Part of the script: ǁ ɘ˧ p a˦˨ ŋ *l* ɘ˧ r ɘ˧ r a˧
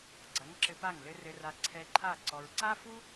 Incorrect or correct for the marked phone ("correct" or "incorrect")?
correct